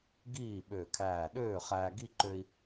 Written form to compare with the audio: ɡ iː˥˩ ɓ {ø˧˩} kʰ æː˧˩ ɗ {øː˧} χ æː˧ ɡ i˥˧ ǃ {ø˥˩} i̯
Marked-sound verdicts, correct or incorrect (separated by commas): correct, incorrect, incorrect